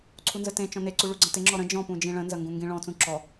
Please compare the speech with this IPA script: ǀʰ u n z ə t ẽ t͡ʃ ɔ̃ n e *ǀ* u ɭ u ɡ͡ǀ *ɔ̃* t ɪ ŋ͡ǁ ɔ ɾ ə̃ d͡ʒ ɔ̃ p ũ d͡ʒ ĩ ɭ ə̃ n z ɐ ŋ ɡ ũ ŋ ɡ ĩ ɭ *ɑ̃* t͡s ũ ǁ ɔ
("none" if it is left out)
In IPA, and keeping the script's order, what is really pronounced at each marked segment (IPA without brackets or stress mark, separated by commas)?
ǀ, ə̃, ɔ̃